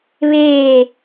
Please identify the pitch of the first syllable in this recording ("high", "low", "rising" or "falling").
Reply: falling